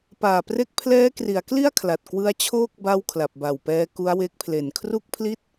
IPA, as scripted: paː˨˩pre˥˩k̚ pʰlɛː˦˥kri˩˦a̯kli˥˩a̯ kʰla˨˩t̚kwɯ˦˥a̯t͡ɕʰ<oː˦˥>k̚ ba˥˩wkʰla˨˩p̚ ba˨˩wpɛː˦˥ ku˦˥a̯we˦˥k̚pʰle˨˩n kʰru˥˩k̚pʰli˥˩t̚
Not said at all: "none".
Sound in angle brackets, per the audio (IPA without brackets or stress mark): oː˥˩